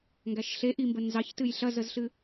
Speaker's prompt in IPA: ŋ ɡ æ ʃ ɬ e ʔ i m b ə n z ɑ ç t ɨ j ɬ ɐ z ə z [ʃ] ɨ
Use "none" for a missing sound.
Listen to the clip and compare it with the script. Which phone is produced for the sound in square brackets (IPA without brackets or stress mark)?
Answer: ɬ